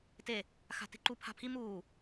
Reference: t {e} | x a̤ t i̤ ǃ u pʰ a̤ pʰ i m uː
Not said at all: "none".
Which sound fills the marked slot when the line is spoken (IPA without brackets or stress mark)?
e